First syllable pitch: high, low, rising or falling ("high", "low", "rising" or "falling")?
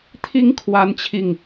rising